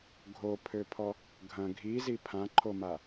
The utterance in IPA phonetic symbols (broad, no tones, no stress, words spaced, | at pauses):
ɡʱopʰøpʰɔ | ɡʱɐ̃ ɡʱizi pʰãǃʰoma